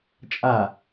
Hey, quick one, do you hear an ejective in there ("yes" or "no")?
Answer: yes